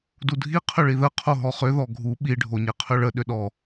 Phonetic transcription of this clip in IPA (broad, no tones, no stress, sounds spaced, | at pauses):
d u dʱ i qʰ ʏ ɭ i ð ə qʰ o ɦ ɔ χ ʏ ð ɔ ɡʱ u ɓ i ɖʱ o ɲ e qʰ ʏ ɭ ə ɗ ʏ ɗ ɔ